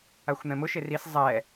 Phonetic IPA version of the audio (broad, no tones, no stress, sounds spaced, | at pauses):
a xʷ n̪ ɛ̃ m ʊ ʃ e r i s zˤ ɛ